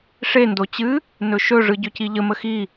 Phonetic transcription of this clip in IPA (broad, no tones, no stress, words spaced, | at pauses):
ʂe ndot͡ɕɨ | nɵʃɵ ʐɯɟɵciʎə məxi